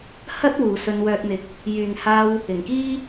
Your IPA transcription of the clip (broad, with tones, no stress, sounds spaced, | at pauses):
h ɐ˥ t̚ w uː˨ s ɵ˧ n w œː˧ t̚ n̪ ɪ˨˥ k̚ | j yː˨ ŋ h aː˧ w | ɪ˨˩ ŋ k iː˥